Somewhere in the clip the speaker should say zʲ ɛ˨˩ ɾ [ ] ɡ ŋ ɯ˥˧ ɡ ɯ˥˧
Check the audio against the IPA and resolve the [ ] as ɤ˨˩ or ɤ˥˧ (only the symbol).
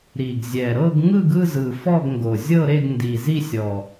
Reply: ɤ˥˧